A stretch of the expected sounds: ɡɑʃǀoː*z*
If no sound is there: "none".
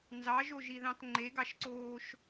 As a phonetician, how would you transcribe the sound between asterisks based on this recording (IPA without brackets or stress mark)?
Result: ʃ